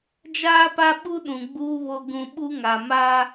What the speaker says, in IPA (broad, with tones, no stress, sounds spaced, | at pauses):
d͡ʒ aː˦ p a˦ ɓ u˦ ɗ ũ˨ ɡ͡b uː˦ β o˦ ɡ ũ˦ ɓ u˦ ŋ a˨ m aː˦